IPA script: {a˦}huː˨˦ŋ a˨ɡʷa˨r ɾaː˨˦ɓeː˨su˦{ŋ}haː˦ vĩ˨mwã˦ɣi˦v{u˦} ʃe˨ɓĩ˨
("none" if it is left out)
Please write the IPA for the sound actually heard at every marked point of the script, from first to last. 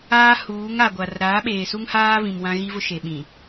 aː˦, ŋ, ʊ˦

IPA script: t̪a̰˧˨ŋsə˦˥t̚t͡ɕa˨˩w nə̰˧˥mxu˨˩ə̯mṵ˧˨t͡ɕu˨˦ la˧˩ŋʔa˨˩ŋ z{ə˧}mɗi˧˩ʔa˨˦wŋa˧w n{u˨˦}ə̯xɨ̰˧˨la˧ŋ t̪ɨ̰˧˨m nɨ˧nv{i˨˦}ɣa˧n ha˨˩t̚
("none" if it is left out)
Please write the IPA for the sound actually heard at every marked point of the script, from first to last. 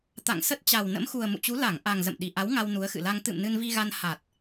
ə̰˧˨, u˨˦, i˧

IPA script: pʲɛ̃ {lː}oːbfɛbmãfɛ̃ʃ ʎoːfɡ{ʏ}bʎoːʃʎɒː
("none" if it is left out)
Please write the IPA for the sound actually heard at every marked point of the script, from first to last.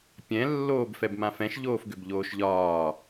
lː, ʏ

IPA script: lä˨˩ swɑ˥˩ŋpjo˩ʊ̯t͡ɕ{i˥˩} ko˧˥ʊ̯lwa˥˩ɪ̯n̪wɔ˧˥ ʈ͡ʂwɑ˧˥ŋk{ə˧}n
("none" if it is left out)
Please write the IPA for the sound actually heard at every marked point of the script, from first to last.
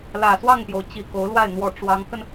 i˨˩, ə˧

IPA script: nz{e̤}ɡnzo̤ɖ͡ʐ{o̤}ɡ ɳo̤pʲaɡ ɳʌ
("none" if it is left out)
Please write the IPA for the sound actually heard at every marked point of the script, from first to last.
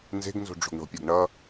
e̤, o̤

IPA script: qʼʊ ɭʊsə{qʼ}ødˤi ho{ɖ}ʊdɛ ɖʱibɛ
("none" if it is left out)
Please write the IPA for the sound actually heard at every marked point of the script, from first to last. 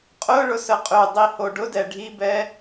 qʼ, ɖ

